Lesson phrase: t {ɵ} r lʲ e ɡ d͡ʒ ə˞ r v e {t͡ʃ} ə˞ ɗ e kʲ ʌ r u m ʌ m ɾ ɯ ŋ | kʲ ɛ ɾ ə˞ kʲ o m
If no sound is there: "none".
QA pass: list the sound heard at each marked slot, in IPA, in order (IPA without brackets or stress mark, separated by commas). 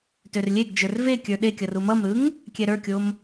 ø, kʲ